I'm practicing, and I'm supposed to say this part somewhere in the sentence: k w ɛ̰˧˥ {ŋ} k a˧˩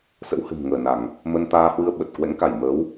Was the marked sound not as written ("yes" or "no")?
no